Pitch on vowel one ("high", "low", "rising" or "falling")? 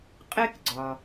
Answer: high